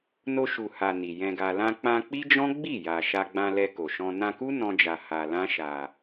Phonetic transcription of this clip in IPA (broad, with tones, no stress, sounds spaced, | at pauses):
n o˧ ʃ u˨ h a˨ n i˨ j ɛ̃˧ ɡ a˧ l ã˧ k͡p ã˧ k͡p i˦ d͡ʒ ɔ̃˦ ɡ͡b i˦˨ j a˨ ʃ a˧ ɡ͡b ã˧ l ɛ˧ k o˨ ʃ ɔ̃˧ n ã˧ k u˦ n ɔ̃˦ d͡ʒ a˧ h a˧ l ã˦ ʃ a˧